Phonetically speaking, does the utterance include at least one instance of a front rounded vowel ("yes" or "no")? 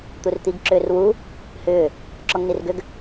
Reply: yes